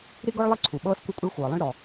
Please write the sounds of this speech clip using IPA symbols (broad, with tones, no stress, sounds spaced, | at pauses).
ɾ i˥ ɡ ɔ˥ ɭ lˠ e˥ ǀʰ u˩ ɓ ɤː˥ s kʷ e˥ kʷʼ ɛ˥ ɭ xʷ ɤː˩ lˠ ĩ˥ ɭ ɾ ɔ˩